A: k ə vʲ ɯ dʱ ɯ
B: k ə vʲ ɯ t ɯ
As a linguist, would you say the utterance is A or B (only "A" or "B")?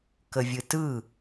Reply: B